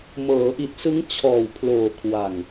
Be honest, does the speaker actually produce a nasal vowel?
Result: no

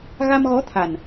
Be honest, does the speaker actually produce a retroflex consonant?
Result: no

